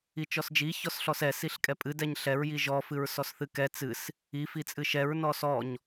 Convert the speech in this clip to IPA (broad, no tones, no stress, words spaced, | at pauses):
it͡ʃɔsd͡ʒi çɔsɬɔsɛ siɬkʼɛpʼɨ dɛɲɬɛɹ jiʒɔ fɨɹsɔsθɨkɛ t͡sɨs | i fit͡sʼɨʃɛɹ nɔsɔɲ